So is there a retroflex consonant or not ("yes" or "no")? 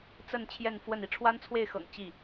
yes